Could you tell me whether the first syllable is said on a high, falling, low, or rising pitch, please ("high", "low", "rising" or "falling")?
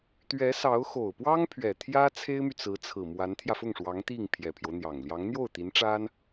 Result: rising